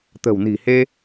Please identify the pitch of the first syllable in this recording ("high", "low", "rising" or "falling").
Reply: low